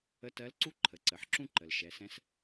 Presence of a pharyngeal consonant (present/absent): present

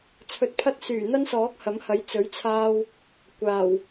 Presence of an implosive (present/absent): absent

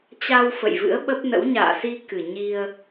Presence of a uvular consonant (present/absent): absent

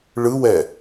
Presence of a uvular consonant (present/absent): absent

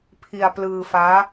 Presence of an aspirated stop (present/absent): present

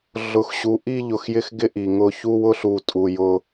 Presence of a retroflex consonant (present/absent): absent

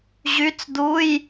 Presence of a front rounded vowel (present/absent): present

